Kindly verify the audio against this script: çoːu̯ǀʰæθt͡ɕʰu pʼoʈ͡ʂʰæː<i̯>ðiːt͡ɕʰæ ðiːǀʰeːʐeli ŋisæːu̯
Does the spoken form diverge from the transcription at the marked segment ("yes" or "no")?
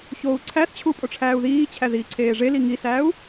yes